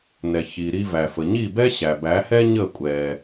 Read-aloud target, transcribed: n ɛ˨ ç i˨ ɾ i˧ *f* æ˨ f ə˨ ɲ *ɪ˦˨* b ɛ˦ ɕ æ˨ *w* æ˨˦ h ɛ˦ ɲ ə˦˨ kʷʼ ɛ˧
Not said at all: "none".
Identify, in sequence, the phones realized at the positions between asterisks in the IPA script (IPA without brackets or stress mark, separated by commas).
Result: v, i˦˨, b